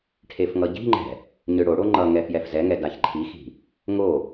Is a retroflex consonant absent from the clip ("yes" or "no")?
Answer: no